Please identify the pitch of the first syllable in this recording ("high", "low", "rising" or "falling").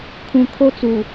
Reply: low